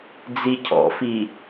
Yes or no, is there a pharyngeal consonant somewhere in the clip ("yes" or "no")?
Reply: no